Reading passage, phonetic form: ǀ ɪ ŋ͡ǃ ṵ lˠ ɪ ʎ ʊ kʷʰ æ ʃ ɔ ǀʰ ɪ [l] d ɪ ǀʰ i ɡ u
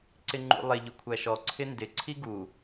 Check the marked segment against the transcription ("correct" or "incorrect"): incorrect